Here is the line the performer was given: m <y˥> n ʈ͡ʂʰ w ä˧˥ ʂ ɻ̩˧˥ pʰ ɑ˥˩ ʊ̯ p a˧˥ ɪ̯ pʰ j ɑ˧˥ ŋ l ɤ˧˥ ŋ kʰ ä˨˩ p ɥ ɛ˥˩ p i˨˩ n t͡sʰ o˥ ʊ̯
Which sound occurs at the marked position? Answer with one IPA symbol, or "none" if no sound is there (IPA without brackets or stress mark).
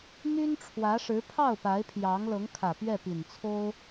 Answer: y˥